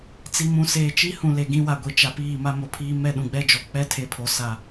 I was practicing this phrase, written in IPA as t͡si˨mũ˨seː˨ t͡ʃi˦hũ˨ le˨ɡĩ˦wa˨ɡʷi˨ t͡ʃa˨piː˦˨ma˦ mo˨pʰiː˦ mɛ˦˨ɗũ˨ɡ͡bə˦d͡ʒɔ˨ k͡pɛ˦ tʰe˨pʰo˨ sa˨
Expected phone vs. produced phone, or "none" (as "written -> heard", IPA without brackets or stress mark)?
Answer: ə˦ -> ɛ˦